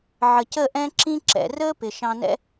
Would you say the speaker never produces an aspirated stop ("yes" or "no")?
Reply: yes